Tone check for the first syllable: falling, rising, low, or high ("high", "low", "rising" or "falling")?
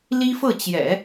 high